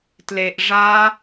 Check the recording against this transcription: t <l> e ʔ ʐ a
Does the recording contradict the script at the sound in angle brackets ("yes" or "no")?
no